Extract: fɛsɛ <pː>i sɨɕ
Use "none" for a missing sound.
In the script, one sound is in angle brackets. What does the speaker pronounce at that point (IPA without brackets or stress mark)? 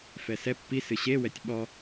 pː